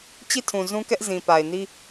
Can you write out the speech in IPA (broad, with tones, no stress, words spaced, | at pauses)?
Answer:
t͡ɕi˦˨tʰũ˨ zũ˦kɛ˦ʔzĩ˨ pa˨ɪ̯ni˦